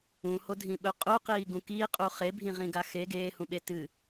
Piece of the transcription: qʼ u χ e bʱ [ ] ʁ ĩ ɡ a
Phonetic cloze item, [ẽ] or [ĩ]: ĩ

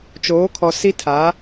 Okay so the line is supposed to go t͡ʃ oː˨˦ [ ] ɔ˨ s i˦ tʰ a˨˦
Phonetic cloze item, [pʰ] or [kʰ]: kʰ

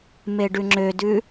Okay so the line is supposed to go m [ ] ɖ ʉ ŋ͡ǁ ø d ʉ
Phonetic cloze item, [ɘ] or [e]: e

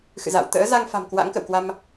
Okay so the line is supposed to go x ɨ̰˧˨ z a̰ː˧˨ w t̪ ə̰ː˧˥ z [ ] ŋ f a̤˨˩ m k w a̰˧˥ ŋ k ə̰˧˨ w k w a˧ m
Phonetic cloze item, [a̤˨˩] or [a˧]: a˧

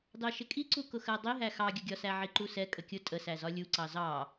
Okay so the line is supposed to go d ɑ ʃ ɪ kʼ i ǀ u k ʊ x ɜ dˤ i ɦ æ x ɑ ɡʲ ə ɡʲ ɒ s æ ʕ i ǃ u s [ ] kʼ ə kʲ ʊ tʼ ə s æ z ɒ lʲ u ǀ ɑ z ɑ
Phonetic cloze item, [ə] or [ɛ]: ɛ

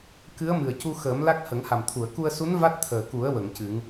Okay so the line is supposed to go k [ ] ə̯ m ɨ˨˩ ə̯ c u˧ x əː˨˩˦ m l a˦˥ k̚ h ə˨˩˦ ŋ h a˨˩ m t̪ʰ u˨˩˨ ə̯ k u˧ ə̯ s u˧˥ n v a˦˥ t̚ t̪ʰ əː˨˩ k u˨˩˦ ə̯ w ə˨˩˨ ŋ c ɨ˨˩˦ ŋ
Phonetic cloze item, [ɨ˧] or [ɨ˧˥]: ɨ˧˥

